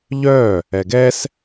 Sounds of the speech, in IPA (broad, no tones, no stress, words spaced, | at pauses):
ʎœ | ɛɡɛs